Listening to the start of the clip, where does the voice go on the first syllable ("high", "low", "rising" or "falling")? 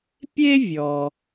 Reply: high